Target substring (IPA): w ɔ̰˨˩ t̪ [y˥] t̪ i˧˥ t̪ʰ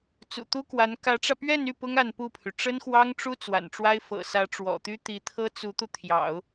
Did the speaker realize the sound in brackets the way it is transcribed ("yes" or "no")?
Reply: yes